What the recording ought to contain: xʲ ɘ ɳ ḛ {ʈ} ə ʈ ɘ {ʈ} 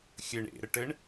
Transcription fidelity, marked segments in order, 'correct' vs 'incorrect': incorrect, incorrect

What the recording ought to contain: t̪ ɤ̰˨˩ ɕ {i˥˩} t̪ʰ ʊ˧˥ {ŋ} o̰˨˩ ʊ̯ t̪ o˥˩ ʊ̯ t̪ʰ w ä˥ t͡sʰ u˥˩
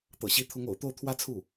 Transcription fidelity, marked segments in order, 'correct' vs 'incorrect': incorrect, correct

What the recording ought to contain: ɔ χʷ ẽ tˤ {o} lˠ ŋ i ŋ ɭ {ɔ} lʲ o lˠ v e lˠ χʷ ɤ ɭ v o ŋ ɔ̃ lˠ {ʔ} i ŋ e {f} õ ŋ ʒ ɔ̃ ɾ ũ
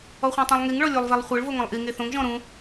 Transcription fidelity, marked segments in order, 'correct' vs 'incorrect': incorrect, correct, correct, incorrect

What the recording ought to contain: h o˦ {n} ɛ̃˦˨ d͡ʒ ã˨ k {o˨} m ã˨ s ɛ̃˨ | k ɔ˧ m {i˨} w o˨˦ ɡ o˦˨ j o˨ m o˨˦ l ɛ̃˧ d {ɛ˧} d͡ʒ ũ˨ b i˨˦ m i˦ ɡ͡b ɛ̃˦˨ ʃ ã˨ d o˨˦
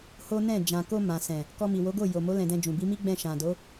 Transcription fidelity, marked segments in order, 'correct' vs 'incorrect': correct, incorrect, correct, incorrect

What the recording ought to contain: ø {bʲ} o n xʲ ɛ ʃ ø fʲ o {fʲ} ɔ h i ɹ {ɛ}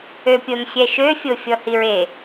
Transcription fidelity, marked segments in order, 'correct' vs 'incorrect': incorrect, correct, incorrect

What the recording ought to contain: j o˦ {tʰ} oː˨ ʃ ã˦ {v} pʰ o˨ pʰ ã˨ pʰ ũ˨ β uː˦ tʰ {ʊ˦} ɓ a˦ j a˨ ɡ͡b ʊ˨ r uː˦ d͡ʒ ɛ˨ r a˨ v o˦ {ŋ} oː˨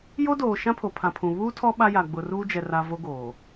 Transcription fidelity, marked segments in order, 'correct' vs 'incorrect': incorrect, incorrect, incorrect, incorrect

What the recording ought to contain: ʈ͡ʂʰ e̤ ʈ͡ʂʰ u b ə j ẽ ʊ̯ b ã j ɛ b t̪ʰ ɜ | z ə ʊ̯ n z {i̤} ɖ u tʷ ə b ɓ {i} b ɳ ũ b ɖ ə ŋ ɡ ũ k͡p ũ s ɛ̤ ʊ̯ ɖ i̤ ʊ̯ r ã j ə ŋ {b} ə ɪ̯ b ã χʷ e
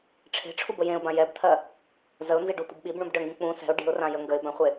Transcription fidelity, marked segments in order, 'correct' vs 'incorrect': incorrect, correct, incorrect

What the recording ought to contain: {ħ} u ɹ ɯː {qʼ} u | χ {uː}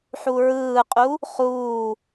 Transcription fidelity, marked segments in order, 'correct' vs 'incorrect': correct, correct, correct

